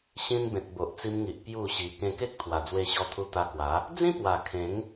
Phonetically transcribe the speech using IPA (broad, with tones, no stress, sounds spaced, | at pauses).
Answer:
ɕ ĩ˧ n b ẽ˨ t̚ b o˨ ʔ t͡s i˧ m ŋ i˨ ʔ p j u˥˧ ɕ i˧ k ẽ˧ k e˦ k̚ t̪ʰ w a˨˩ d͡z w e˧ ɕ ɔ˧ t̪ʰ u˧ t̪ a˧ k w a˨˦ | d͡z ĩ˦ p w a˨˩ kʰ ẽ˨˦ ŋ